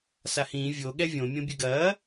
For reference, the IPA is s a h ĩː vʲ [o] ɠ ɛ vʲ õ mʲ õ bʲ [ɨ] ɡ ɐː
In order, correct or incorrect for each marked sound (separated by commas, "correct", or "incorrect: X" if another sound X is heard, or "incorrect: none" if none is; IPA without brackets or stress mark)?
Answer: correct, correct